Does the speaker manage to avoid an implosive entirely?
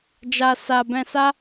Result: yes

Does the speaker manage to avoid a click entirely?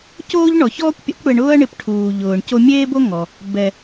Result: yes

